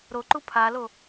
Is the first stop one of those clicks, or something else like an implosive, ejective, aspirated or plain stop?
click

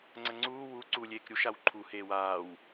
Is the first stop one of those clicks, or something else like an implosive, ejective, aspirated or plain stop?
click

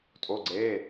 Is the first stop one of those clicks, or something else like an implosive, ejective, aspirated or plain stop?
ejective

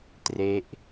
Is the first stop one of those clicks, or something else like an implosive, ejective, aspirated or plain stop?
plain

